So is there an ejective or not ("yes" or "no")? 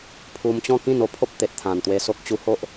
no